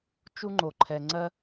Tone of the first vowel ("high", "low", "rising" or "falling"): high